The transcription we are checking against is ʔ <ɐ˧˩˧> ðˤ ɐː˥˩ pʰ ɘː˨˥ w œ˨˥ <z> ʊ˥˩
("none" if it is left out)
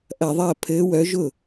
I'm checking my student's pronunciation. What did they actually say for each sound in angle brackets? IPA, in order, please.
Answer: ɐ˧˩˧, ʒ

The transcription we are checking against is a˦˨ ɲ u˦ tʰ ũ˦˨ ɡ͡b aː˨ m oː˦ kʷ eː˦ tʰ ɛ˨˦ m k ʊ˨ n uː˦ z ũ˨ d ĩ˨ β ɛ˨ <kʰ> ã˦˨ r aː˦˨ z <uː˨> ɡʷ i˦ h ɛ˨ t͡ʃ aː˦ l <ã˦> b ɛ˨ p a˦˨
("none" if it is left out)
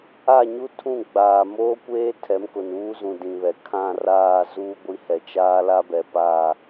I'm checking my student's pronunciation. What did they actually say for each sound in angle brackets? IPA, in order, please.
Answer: kʰ, uː˦, a˦

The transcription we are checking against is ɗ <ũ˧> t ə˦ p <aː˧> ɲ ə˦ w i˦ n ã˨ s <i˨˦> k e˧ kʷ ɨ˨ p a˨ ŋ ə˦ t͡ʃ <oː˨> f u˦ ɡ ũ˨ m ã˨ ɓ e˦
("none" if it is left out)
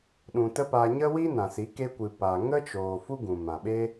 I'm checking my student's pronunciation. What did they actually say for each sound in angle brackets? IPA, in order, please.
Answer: ũ˨, aː˧, i˨˦, oː˨

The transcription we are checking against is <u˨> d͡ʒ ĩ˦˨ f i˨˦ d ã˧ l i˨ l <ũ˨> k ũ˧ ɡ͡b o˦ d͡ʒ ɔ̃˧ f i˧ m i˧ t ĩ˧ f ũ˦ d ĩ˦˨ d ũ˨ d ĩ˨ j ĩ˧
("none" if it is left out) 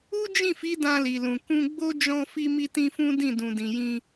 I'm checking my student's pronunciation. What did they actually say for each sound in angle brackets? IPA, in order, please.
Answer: u˦, ũ˨

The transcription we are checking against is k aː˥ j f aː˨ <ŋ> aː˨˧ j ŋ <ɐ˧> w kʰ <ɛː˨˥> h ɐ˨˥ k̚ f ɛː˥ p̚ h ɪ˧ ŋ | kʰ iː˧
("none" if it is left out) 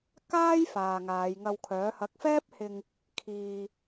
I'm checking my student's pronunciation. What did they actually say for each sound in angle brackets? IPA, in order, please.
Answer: ŋ, ɐ˧, œː˨˥

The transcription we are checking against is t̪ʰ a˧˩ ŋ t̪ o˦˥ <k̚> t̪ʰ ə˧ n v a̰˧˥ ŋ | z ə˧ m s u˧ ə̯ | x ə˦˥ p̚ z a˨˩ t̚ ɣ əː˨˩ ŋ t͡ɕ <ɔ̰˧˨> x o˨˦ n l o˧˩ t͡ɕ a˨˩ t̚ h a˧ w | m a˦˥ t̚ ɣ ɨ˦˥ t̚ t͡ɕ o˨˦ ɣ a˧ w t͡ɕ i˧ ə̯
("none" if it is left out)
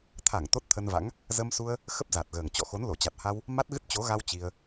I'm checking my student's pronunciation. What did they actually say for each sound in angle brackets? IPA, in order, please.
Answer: t̚, ɔ̰˧˨

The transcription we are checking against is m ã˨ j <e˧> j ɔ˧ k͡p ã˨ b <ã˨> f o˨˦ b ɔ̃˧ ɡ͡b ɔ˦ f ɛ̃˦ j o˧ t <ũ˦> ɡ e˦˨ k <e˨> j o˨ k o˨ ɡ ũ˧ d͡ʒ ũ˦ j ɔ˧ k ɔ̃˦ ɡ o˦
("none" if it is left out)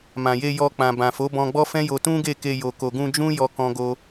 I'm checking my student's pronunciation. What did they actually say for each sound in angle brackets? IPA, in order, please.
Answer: e˧, ã˨, ũ˦, e˧

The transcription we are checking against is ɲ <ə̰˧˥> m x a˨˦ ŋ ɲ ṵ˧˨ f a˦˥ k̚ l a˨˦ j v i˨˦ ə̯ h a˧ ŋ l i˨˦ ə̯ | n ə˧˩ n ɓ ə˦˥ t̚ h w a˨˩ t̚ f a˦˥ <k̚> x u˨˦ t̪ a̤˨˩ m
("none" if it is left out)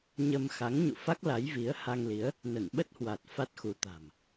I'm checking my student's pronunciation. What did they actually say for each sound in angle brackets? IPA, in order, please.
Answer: ə˧, t̚

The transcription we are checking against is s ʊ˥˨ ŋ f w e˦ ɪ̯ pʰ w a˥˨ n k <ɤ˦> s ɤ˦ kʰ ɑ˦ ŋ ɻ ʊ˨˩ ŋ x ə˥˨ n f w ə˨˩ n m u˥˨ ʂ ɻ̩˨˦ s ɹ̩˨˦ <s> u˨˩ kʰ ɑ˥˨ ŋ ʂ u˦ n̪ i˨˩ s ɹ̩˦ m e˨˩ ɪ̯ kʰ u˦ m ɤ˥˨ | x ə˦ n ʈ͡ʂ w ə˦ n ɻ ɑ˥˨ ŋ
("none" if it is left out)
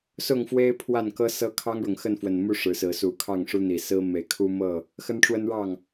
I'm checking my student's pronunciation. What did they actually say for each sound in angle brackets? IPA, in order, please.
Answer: ɤ˦, s

